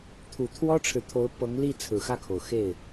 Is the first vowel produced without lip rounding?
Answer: no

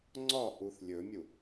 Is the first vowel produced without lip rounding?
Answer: no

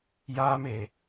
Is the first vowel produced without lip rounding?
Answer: yes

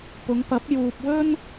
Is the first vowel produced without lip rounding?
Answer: no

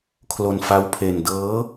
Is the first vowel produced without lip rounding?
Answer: no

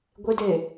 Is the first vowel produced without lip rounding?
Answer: yes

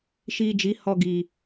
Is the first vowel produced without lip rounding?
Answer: yes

